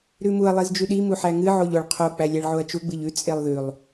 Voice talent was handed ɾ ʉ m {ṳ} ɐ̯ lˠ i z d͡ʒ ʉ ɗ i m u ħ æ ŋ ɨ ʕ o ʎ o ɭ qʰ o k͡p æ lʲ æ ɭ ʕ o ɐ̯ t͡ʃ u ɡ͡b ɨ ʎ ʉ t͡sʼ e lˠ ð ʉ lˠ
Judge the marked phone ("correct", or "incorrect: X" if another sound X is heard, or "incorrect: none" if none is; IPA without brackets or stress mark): incorrect: u